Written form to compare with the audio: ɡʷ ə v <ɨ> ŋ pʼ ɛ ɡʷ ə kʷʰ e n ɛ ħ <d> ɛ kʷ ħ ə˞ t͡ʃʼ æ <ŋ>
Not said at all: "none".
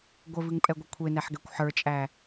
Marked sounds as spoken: ɨ, ɡ, none

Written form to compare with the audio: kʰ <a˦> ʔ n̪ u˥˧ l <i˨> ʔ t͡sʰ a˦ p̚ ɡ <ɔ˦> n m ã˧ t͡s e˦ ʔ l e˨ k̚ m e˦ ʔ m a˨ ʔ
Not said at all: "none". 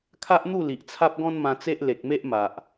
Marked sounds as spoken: a˦, i˨, ɔ̃˦

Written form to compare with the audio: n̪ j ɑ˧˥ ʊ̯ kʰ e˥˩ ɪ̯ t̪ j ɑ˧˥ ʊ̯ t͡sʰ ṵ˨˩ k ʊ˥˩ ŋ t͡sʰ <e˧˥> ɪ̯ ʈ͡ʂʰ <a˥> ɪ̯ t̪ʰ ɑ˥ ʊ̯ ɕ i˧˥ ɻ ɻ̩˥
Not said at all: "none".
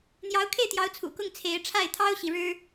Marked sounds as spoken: e˧˥, a˥˩

